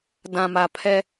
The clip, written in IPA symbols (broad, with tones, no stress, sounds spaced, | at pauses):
d ã˨ m a˨ pʰ ɛ˦